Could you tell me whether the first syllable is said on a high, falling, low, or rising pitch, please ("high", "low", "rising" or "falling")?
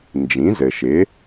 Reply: rising